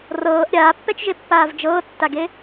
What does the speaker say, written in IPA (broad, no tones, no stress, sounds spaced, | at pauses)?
r ɤː ʔ ɾʲ aː pː ɛ t͡ʃ ʒ e pː aː v d͡ʒ ɤː tː a ɡ e